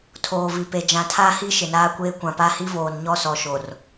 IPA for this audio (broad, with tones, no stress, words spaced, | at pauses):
tʰoː˨vi˨pe˨ d͡ʒã˨tʰaː˦hi˦ ʃɪ˨naː˦kʷeː˦ kʷã˨pa˦ hi˦voː˨nɲɔ˦ sɔ˨ʃo˨r